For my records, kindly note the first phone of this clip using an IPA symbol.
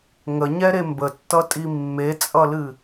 ŋ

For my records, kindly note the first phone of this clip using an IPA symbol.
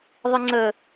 ðˤ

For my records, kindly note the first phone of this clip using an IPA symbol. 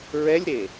ɹ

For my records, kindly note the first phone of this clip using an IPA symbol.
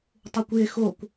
tˤ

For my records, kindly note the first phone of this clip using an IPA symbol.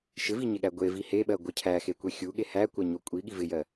ʃ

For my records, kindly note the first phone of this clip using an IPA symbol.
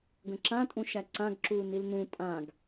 ɡ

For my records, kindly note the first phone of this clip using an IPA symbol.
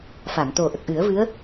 f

